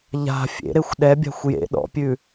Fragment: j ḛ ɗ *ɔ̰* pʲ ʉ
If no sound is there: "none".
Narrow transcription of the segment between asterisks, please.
ɔ̰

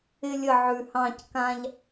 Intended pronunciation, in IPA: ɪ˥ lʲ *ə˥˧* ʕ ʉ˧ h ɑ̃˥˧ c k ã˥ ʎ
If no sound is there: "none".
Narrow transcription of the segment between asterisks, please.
ə˥˧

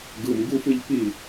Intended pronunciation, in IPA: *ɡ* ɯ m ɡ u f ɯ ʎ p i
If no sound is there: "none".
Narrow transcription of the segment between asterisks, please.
ɡ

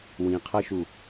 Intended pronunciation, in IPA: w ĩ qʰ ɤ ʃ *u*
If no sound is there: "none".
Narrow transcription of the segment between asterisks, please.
u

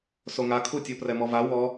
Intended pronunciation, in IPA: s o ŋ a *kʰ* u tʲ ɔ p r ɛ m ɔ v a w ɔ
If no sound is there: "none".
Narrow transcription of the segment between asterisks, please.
kʰ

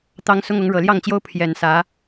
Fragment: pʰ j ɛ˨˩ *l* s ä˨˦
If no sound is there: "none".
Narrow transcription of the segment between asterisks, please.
n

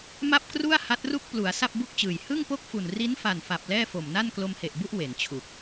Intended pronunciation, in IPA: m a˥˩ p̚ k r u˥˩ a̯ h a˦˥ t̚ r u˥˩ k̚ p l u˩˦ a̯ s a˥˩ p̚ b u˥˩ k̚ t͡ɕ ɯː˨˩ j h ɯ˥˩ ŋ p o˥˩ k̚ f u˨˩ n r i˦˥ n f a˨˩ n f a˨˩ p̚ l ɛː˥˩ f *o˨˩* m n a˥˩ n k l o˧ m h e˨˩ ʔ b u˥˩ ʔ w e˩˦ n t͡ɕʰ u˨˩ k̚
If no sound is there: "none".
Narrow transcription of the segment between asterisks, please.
o˨˩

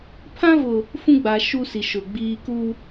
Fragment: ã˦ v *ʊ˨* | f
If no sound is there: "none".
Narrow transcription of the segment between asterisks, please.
ʊ˨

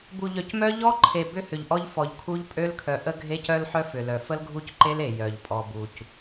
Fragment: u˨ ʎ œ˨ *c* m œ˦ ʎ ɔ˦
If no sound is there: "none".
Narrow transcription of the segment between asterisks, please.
c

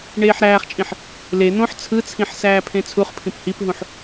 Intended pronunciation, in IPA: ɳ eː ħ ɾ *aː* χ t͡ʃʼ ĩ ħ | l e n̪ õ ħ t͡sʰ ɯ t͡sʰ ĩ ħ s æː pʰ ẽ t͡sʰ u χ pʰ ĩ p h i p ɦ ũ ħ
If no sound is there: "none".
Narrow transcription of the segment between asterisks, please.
æː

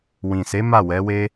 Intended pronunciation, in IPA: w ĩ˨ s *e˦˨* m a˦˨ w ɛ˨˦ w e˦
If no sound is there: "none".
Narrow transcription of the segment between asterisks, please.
e˨˦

